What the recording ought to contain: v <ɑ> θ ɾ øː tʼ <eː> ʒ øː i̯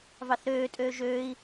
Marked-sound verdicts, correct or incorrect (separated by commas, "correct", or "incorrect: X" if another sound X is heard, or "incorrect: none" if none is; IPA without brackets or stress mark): correct, incorrect: øː